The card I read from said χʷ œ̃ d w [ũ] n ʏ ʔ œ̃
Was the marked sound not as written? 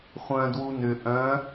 yes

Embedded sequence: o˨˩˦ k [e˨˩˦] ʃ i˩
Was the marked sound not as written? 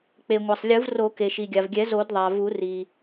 yes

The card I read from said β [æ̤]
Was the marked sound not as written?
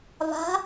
yes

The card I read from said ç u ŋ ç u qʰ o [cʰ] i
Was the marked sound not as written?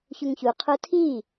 yes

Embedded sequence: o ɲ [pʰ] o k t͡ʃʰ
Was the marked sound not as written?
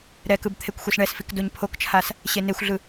no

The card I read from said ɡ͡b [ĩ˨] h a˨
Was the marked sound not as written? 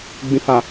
no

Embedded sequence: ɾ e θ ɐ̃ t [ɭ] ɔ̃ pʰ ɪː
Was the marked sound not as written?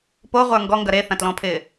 yes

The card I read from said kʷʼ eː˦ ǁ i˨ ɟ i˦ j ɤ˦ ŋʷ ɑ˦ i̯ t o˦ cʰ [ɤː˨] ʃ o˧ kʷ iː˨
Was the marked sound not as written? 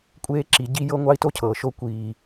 no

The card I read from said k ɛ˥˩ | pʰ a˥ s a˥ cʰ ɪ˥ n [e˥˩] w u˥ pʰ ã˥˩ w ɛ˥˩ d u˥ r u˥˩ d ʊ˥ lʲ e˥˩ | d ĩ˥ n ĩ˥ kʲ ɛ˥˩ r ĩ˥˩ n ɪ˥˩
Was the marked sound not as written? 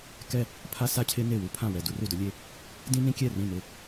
no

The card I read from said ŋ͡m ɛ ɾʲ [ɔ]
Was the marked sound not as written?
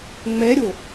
yes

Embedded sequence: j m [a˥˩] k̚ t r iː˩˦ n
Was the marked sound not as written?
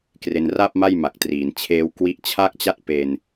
yes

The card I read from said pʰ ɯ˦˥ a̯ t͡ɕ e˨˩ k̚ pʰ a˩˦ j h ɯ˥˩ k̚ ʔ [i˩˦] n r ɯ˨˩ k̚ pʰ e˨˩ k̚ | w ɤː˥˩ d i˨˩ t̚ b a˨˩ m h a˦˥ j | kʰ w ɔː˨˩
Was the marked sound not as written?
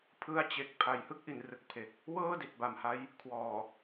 no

